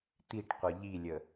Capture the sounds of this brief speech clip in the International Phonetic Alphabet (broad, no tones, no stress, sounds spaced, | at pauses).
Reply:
t̪ i ʈ qʷ ʌ ʎ i lʲ ə